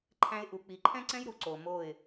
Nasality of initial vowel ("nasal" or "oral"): nasal